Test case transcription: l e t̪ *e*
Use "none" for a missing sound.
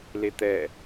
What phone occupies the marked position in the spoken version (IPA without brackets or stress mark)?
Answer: ɛ